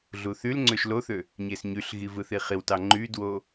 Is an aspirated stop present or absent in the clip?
absent